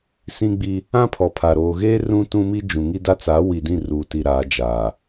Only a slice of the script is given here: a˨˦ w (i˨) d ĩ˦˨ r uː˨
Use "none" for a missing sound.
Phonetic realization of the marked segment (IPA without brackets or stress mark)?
i˨